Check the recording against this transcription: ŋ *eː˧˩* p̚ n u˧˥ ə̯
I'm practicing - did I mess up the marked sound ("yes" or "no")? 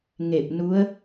yes